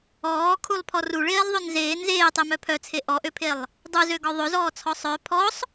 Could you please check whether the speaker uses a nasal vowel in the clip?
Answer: no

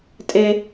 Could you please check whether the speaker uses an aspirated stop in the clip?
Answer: no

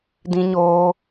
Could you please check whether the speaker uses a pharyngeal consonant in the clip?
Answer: no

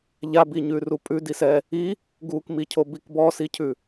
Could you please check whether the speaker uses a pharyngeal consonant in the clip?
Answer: no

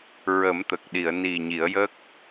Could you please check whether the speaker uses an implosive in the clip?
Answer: yes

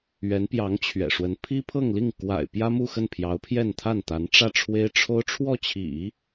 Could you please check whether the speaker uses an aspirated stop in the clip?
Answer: yes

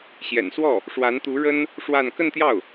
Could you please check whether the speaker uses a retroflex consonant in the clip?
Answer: yes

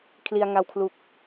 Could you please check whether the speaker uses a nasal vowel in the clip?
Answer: no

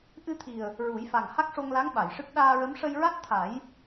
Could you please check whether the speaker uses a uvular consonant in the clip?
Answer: no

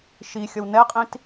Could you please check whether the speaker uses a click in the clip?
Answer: no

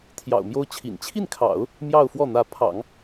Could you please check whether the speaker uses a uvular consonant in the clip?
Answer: no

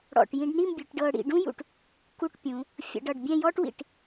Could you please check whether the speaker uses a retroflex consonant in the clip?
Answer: yes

